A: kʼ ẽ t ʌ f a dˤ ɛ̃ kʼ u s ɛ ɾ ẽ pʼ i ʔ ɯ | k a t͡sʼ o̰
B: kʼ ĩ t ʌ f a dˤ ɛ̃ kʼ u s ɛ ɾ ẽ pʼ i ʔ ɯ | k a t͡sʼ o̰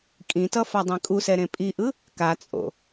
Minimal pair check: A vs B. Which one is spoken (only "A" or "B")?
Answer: B